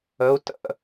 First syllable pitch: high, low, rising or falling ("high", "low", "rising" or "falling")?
rising